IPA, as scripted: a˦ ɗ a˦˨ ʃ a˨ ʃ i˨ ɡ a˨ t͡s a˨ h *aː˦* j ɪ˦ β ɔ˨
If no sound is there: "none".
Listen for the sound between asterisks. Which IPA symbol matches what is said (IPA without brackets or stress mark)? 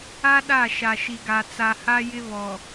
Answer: a˦